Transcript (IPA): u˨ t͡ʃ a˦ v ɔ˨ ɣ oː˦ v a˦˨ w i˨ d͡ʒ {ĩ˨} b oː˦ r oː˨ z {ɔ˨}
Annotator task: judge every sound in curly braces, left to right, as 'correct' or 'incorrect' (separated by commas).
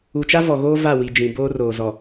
correct, correct